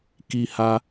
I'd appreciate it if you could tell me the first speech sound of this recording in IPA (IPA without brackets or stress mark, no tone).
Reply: k